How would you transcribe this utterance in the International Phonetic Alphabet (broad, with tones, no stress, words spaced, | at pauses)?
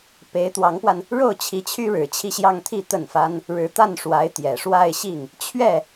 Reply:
pe˧˥ɪ̯t̪wɑ˧˥ŋpwa˧n | ɻo˥˩ʊ̯t͡ɕʰi˧˥t͡ɕʰy˥ ɻɻ̩˧˥ t͡ɕʰi˥˧ɕjɑ˥˧ŋt̪ʰi˥˧ t̪ə˥˩nfa˥n | ɻɻ̩˧˥t̪a˥˩nʂwa˧˥ɪ̯ t̪jɛ˨˩ ʂwa˥˧ɪ̯ɕi˥˩ŋ | t͡ɕʰɥɛ˥˩